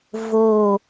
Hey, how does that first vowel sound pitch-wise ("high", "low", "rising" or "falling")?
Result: falling